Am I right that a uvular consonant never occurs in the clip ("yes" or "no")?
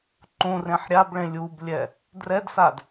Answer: yes